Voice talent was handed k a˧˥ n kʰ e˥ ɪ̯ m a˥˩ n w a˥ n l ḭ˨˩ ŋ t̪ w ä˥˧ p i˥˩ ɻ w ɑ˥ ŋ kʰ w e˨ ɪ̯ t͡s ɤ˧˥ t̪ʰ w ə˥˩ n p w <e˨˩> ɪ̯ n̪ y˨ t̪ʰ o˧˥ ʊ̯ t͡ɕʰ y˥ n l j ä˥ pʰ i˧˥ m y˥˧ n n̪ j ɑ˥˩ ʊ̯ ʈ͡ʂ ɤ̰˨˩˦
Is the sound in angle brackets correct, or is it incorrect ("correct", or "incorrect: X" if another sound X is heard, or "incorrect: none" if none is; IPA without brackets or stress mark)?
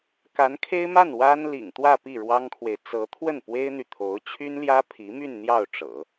incorrect: e˥